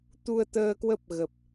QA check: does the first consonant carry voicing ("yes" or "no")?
no